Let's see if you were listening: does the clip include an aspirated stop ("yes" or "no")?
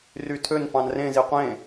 yes